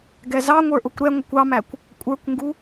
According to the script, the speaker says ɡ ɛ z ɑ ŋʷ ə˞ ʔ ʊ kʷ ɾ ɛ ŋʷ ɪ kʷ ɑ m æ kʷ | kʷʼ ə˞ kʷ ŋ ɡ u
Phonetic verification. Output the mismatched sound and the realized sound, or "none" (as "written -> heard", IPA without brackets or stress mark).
none